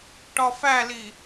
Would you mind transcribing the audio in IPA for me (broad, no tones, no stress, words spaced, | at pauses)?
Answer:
ʈɒfæli